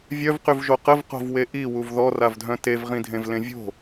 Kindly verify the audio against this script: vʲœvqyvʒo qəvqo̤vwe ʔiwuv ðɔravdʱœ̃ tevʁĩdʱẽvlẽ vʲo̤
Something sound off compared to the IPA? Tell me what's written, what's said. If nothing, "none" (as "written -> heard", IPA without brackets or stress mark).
none